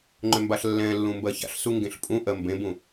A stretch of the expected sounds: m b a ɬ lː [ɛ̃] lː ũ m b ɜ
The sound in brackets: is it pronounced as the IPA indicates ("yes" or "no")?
yes